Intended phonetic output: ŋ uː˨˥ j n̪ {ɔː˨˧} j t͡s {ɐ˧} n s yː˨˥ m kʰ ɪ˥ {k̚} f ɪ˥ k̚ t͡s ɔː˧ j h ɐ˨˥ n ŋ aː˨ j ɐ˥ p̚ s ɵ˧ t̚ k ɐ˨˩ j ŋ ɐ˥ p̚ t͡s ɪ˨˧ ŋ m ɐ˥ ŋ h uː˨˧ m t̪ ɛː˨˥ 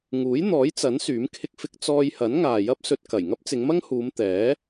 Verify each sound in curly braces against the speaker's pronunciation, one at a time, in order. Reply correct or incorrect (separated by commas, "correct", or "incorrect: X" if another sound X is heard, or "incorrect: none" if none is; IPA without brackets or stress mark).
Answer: incorrect: ɔː˨˥, incorrect: ɐ˨˥, correct